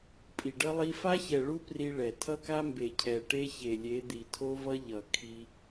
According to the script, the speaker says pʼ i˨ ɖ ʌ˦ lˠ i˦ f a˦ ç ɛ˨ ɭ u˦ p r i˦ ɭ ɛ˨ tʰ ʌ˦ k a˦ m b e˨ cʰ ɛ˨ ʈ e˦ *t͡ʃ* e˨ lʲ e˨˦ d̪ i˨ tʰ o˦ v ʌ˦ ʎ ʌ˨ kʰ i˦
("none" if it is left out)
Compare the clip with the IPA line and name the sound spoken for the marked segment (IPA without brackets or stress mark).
ç